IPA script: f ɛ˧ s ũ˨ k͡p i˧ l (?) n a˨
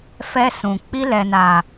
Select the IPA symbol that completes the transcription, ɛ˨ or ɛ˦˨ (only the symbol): ɛ˨